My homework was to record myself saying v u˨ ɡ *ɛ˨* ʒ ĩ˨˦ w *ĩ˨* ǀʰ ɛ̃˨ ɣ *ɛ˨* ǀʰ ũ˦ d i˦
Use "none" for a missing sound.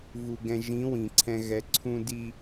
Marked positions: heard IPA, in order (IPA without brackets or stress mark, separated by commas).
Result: ɛ̃˨, ĩ˨, ɛ˨